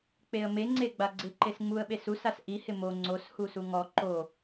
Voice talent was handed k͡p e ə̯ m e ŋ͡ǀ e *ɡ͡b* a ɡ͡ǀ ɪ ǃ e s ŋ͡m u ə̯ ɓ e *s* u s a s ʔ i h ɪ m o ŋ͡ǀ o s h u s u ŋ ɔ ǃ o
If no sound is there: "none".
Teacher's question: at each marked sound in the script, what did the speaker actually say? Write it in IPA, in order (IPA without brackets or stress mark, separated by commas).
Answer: ɡ͡b, s